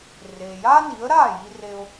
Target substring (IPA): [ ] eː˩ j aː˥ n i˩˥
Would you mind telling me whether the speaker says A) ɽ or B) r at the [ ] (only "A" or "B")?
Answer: B